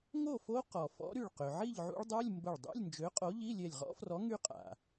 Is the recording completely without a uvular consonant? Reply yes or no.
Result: no